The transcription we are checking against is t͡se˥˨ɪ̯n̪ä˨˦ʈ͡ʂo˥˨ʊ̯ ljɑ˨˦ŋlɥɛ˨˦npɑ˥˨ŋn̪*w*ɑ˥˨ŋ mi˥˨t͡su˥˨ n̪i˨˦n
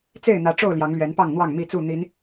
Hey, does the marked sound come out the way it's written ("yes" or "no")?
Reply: yes